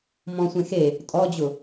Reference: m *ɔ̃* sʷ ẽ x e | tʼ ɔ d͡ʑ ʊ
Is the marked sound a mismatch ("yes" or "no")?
no